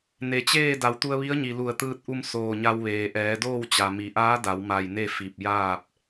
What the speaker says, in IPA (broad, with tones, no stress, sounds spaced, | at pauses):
n e˩ t͡ɕ eː˥˨ d a˩˧ w t̪ u˧ ə̯ ʋ i˧˥ ə̯ ɲ i˩ l u˧˩ ə̯ t̪ ɯː˧ t̚ ʔ u˧ m s oː˧˩ ɲ a˧ w ʋ eː˩ ʔ ɛː˩˧ d oː˥˨ w t͡ɕ a˩ m i˩˧ ʔ aː˧˥ d a˩˧ w m a˧˩ j n e˥˨ f i˧˩ p̚ j aː˥˨ p̚